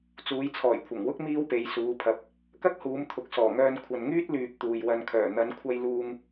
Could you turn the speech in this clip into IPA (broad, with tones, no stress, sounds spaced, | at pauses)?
t͡s uː˨˧ j t͡sʰ ɔː˨˩ j kʷʰ ɐ˨˩ ŋ w ʊ˥ k̚ m iː˥ w p e˨˧ j s uː˨˧ pʰ ɐ˨˥ p̚ | k ɐ˥ k̚ h uː˨˧ m t̪ʰ ʊ˨ k̚ s ɔː˨˩ ŋ œː˧ n kʷʰ ɐ˨ n ŋ yː˥ t̚ l yː˨ p̚ t̪ uː˨ j w ɐ˧ n kʰ œː˨˩ n̪ ɐ˨˧ n kʷʰ ɐ˧ j l uː˧ ŋ